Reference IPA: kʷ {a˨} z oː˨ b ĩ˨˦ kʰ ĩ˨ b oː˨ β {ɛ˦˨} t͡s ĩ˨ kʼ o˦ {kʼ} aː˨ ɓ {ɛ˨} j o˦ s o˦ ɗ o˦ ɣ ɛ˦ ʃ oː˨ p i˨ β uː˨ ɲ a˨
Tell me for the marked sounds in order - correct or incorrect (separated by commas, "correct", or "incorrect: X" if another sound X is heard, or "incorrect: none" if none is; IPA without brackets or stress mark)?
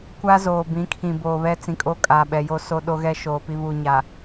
incorrect: a˦, incorrect: ɛ˦, correct, correct